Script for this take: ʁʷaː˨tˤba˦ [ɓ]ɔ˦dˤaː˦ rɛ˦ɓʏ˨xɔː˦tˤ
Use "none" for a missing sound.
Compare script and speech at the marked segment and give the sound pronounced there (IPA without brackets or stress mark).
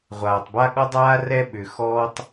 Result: ɠ